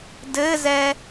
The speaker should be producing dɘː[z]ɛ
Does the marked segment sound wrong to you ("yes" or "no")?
no